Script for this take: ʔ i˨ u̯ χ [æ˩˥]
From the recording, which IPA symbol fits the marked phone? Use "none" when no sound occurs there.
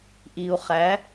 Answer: æ˩˥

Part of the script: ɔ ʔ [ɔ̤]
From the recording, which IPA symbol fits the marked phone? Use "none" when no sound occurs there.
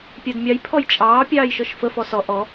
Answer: ɔ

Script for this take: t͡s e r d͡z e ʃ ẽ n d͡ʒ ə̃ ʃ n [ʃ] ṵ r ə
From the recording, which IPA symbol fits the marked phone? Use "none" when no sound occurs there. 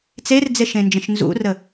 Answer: z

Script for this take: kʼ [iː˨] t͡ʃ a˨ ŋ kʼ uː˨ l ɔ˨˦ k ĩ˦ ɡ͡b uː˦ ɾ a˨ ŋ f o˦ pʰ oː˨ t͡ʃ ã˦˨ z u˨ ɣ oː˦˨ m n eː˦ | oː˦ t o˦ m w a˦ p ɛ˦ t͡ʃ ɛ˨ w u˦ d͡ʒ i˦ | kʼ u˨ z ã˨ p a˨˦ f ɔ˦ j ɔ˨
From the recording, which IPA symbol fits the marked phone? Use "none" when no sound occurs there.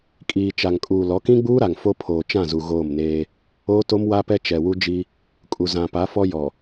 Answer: iː˨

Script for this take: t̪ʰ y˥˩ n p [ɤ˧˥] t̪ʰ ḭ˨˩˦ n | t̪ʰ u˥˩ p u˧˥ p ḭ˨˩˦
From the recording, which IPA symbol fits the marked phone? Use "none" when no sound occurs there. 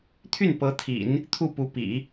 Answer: ɤ˧˥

